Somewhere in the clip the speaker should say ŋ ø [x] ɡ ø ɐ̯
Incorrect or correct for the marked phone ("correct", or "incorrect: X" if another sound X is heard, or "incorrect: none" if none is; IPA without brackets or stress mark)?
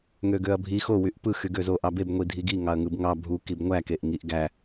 incorrect: none